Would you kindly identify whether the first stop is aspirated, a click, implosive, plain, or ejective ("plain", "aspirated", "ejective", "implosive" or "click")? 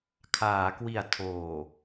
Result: aspirated